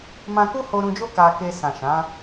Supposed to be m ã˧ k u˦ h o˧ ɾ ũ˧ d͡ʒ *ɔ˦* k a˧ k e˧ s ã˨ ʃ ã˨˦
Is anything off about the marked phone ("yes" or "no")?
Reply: yes